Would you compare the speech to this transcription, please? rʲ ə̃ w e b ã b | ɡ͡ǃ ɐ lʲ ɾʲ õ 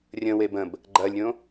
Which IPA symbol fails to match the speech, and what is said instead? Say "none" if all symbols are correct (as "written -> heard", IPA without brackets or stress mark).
ã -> ə̃